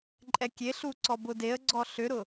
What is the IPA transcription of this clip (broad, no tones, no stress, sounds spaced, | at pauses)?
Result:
ǃʼ ɛ kʲ e ɬ u ǀ ɔ b ʊ d e ə̯ ɡ͡ǀ ɔ ɬ ʏ ɾ ʊ